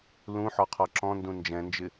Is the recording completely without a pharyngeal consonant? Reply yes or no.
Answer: no